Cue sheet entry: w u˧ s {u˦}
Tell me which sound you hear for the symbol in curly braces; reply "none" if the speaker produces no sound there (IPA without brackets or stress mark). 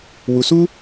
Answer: u˦